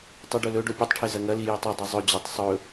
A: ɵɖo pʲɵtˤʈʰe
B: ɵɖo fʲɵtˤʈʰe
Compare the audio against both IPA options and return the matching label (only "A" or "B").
A